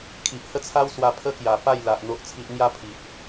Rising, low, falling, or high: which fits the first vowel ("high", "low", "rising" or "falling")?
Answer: low